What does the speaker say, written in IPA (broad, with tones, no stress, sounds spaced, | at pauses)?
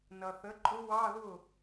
n ʌ˩ θ ə˩˥ ǃʼ ʊ˧˥ w ɑ˧˥˧ ð ʊ˥˩